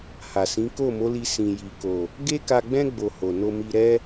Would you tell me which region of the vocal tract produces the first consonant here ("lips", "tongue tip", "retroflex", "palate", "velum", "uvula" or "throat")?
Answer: throat